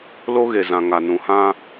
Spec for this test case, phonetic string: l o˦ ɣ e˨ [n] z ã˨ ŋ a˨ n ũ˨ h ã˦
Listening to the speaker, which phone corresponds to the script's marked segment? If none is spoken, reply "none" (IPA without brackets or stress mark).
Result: none